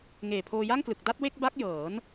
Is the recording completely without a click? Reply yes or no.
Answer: yes